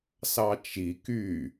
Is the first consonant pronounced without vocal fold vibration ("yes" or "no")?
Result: yes